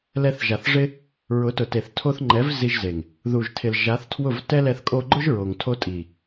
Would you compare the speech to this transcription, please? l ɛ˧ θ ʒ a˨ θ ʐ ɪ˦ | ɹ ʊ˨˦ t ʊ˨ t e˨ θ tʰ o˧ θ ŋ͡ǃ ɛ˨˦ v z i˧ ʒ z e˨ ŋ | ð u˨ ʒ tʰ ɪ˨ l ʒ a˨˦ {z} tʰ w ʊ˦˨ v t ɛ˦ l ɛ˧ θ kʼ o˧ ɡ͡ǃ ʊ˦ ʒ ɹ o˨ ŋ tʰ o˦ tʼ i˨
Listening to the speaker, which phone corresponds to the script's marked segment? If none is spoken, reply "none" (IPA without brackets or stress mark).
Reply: θ